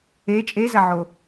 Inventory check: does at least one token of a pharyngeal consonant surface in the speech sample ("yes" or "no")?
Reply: yes